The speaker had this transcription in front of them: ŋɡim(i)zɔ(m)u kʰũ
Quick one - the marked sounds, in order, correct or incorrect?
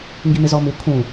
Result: incorrect: ɪ, correct

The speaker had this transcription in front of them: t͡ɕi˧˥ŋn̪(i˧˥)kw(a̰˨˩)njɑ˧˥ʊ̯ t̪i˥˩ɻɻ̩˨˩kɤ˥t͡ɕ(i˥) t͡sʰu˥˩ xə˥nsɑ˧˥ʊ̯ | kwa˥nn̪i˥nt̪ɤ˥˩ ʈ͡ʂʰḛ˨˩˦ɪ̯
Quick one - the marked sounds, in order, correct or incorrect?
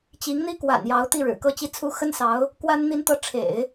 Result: incorrect: i˥, correct, correct

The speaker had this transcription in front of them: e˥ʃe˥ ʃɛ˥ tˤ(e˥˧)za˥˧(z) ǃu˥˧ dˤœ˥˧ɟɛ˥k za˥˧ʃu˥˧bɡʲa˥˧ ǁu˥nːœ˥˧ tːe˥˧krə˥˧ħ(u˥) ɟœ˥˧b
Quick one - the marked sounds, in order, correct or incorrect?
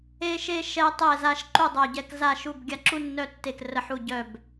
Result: incorrect: ɛ˥˧, incorrect: ʃ, incorrect: u˥˧

